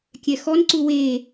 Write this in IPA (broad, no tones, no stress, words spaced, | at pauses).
kʲɛxɔnǀu we